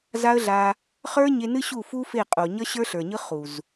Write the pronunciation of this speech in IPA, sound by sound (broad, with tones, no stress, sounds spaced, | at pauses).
z a˦ ə̯ ɮ a˧ | χ ə˞˦ ɲ e˧ n ɨ˦ ɕ u˦˨ f u˦ f e˦˨ qʼ o˨ ɲ ʌ˦ ɕ ə˞˦ ɬ ə˞˨ ɲ ɯ˦ χ u˨ z